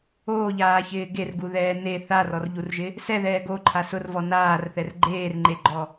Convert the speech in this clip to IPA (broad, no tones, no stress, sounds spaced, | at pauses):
oː ʎ aː ç ɪː ɡ e r ɡ u ð ɛː n e θ a r ɔ r ʎ u r ʒ ɪ | s ɛ ð ɛː ɡ o ǃʰ a s ʊ r v ɔ n aː r θ ɛ r ɡ͡ǃ eː r ŋ͡ǃ e ɡ͡ǃ ɔ